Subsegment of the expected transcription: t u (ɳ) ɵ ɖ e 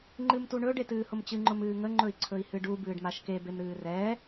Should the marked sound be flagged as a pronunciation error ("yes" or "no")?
no